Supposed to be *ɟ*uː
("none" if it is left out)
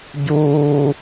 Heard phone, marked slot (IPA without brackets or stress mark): ɟ